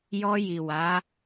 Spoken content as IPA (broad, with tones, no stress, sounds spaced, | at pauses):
j ɔ˧ j i˨ w a˨˦